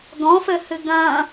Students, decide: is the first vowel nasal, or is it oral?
nasal